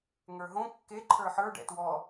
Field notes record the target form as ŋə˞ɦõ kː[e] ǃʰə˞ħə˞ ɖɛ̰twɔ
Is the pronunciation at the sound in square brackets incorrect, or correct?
correct